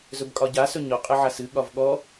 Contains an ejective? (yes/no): yes